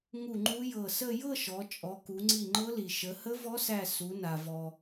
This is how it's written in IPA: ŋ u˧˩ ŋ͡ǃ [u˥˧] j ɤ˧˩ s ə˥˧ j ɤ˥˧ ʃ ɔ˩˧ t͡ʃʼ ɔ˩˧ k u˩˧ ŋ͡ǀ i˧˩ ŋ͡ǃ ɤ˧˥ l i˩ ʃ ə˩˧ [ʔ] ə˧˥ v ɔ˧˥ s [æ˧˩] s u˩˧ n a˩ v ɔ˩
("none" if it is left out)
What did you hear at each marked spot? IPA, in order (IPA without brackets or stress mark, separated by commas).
u˧˥, h, æ˧˩